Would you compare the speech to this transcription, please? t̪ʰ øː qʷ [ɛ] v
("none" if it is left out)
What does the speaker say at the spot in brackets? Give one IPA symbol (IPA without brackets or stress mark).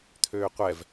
ɛ